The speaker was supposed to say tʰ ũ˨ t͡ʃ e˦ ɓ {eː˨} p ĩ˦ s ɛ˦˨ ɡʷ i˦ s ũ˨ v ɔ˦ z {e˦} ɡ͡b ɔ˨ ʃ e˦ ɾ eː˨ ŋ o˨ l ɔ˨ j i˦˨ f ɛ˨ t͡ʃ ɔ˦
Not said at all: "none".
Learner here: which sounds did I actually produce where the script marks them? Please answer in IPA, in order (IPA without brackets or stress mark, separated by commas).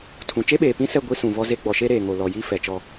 eː˨, e˦